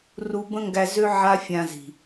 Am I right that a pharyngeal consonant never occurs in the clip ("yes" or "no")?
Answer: no